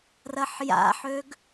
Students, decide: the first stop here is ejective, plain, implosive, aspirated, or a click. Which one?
plain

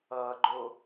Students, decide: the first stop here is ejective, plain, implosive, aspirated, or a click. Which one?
click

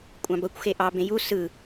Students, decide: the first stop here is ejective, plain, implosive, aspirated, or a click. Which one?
ejective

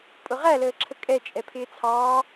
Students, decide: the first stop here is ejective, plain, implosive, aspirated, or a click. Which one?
ejective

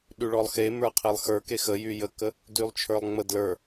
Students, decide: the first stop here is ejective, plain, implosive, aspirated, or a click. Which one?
implosive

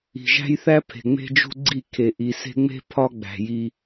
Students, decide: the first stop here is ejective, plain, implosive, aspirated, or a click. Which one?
aspirated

